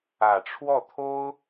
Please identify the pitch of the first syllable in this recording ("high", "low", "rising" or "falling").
low